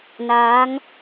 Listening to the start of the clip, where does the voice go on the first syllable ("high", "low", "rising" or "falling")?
rising